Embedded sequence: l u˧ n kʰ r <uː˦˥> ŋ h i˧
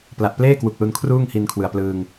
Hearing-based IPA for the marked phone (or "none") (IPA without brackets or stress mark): uː˥˩